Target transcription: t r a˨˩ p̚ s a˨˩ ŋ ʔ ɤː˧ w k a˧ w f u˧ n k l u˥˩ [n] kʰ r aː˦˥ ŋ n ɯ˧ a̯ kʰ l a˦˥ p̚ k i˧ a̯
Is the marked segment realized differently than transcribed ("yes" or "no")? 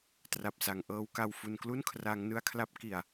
no